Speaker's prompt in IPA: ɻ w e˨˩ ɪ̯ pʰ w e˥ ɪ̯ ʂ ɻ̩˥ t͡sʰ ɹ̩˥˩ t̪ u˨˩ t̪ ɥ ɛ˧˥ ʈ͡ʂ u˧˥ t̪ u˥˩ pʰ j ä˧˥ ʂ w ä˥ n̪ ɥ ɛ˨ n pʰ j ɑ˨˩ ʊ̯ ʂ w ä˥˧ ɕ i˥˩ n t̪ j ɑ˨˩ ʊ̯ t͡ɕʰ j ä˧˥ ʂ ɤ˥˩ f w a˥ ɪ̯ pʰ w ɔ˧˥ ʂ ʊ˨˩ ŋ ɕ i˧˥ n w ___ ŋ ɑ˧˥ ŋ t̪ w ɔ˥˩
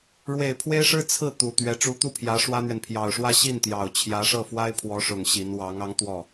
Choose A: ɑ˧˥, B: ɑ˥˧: A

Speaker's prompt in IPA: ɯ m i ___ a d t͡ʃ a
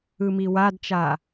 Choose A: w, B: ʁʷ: A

